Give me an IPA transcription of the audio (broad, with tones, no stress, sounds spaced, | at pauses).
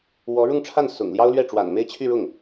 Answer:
w ɔ˧˥ ɻ ʊ˥˧ ŋ ʈ͡ʂʰ a˥˩ n s ʊ̰˨˩ ŋ l j ɑ˥ ʊ̯ l ɥ ɛ˥˩ ʈ͡ʂ w a̰˨˩ n m e˥˧ ɪ̯ t͡ɕʰ y˥˧ ɻ ʊ˥˩ ŋ